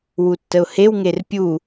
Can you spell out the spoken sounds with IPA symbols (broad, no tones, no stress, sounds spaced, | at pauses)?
w u tː ə ʊ̯ h e w ŋ e r pʲ u